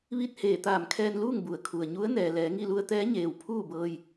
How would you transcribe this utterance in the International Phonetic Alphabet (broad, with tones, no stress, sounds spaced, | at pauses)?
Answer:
ʋ i˥˨ t̚ h eː˧˩ t̪ aː˧˩ m kʰ ɛː˧ n l uː˥˨ ŋ b u˩˧ ə̯ kʰ u˩ ə̯ ɲ u˧˥ ə̯ n ɛː˩ l ɛː˩˧ ŋ i˥˨ l u˧ ə̯ t̪ ɛː˧˥ ɲ eː˩ w pʰ uː˥˨ b ɤː˧ j